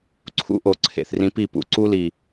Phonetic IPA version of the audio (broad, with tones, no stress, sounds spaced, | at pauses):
ǀʰ ṵ˦ ʔ o˨ ǀʰ ḛ˨ θ r ĩ˧ p i˦˨ p ṵ˧ ǀ u˦ l i˨